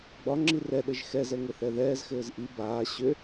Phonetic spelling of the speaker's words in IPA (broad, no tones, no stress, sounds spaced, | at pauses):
ɡ͡b ɒ ŋ͡ǁ i r ɛ ɗ ɘ ʒ x ɛ z ɛ ŋ ɘ θ ɛ ð ɛː z x ɘː z ʔ i b aː ɕ ʏ